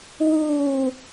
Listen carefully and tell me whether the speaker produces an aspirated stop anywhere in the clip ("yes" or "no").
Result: no